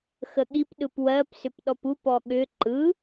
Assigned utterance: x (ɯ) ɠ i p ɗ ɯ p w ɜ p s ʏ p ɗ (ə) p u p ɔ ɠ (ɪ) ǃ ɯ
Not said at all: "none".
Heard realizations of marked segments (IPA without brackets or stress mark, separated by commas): ə, ɔ, ʏ